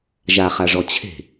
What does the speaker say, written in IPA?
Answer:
ʒaχaʐɔ t͡ɕʰe̤

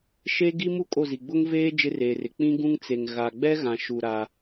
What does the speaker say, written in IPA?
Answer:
ʃe˦ ɡi˦mu˦ kʼo˦˨zi˨ ɡ͡bʊ˦ŋveː˦ d͡ʒɪ˦reː˨rɪ˨ k͡pĩ˦ɡũ˦ŋt͡se˨ŋ ɣa˨ ɡ͡bɛ˦ɣã˨ʃu˨ ɾa˦

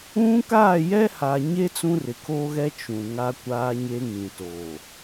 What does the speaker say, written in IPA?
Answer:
ũ˦ kaː˦˨jɛ˦ha˨ɲe˦ t͡sũ˦rɪ˨kʰoː˦ɣɛ˦ t͡ʃũ˨ ŋa˦kʷaː˦ɲe˦ŋĩ˨ toː˨

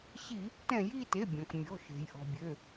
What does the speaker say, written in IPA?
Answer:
ɕi˧˩˧ | tɛ̃˧˩˧ji˦˨te˩˧˩ bʲɔ̃˩kmʲɔ̤˩˧˩ʃe̤˩j ʔɔ̤˩bʲø˩˧˩

